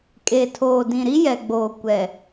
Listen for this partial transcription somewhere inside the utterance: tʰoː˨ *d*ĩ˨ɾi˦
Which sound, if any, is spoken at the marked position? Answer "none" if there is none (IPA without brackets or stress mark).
d